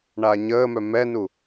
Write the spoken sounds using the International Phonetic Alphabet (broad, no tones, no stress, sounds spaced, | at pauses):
ɳ aː ɲ əː m œ m ɛ n u